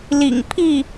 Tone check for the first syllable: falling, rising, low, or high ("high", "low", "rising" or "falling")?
low